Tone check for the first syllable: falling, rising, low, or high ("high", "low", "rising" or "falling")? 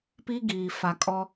high